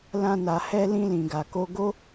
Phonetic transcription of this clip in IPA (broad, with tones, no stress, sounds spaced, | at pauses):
l ã˧ n a˨ h ɛ˧ l ĩ˧ l ĩ˨ ɡ a˨ k o˧ ɡ o˦